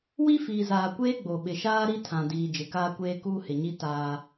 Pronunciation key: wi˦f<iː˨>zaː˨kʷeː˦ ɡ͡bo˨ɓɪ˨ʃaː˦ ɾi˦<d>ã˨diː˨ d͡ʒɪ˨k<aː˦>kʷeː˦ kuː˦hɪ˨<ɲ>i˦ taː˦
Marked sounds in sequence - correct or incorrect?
correct, incorrect, correct, correct

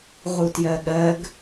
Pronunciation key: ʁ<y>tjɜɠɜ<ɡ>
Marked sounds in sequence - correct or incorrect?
incorrect, correct

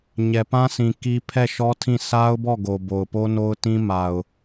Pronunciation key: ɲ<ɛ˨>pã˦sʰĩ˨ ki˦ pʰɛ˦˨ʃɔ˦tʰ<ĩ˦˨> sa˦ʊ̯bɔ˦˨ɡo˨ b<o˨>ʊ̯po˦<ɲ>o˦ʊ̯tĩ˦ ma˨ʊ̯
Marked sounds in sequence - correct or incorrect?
correct, correct, correct, incorrect

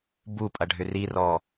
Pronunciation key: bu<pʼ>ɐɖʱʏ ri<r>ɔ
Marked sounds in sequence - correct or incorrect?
correct, correct

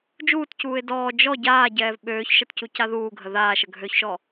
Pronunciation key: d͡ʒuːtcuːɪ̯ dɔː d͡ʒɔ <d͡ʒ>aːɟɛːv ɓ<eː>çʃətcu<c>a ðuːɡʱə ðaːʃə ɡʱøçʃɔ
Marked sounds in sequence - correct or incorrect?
incorrect, incorrect, correct

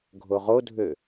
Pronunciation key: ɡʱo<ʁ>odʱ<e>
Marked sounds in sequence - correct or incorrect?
correct, incorrect

